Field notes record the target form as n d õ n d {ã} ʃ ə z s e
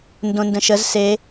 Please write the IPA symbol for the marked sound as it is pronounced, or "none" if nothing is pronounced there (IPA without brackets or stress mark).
ə̃